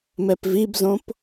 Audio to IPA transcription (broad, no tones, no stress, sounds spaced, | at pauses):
m ɛ p v i b z õ p